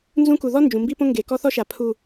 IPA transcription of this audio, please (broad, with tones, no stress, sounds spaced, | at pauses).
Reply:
n z ũ˦ k u˨ ð ɔ˦ n d͡ʒ ũ˨ m b i˦ p õ˦ ŋ ɡ e˨ k ɔ˦ θ ɔ˦ ʃ a˨ pʰ u˨